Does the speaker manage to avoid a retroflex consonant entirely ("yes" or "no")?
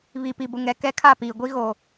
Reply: yes